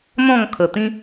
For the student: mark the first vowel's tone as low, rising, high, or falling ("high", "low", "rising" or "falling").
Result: falling